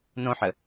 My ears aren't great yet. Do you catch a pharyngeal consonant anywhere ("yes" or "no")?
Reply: yes